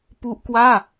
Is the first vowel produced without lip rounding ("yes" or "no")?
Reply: no